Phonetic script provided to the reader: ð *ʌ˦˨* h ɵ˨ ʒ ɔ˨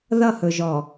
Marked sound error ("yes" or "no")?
no